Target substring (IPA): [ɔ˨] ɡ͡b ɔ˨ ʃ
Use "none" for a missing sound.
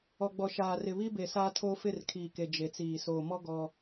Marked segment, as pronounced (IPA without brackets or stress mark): ɔ˨